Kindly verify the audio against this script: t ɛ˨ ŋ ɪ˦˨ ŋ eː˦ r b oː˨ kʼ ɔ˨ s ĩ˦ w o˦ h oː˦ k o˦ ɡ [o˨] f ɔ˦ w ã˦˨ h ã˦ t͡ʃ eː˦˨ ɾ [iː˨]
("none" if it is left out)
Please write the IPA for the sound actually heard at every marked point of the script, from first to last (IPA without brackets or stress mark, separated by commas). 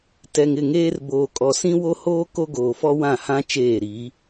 oː˨, iː˨˦